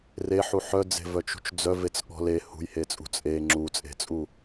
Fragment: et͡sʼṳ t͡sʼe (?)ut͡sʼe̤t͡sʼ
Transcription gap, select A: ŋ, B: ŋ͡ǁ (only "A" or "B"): B